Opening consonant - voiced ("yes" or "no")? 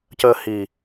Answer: no